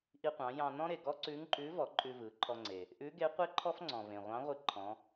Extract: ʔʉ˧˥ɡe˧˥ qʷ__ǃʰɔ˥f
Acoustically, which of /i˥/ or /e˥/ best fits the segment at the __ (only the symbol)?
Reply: e˥